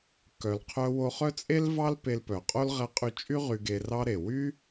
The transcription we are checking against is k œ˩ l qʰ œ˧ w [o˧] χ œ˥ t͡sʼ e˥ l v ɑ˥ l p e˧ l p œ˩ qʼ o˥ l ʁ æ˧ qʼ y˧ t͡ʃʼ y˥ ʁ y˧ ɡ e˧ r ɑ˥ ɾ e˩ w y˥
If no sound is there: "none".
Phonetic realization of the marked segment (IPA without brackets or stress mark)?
o˧